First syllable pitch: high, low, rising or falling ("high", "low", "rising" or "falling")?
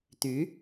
rising